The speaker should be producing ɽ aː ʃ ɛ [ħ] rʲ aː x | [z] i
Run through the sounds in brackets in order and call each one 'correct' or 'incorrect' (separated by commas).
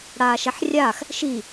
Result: correct, incorrect